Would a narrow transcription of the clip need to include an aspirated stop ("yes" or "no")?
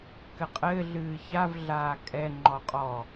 no